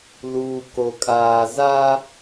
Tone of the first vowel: low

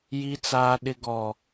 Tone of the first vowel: high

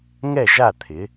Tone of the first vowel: falling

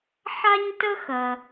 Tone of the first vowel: high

